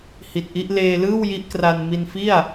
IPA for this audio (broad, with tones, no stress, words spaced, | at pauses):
hi˨˩t̚ʔi˦˥ʔ leː˧lɯː˥˩w ji˦˥ʔkra˧n mi˧nfi˥˩a̯